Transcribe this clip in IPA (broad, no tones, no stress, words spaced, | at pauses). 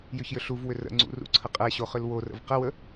jʏçjʏɬuvwʏ rə̰ŋ͡ǀṵ rṵǀʰəqʼɛɕo χʏlworə̰v qəwə